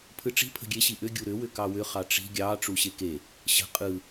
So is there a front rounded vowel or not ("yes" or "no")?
yes